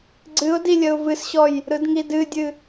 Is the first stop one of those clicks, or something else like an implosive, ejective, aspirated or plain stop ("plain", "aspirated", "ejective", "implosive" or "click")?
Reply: click